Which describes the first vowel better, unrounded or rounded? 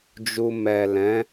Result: rounded